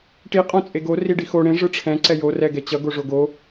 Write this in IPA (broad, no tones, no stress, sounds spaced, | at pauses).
ʈ i qʼ õ t͡sʼ e ɡ o r i ɖ i x o ɽ ẽ ʐ ɯ ʈ͡ʂʰ ɛ̃ ǀ ɛ j o r ɛ ɡ ɛ t͡ɕ ʌ ɡ o ʐ o ɡ o